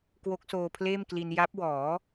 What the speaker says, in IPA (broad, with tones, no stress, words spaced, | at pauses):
kwo˦˥k̚soː˧pʰleː˥˩mkli˧n ja˦˥p̚wɔː˩˦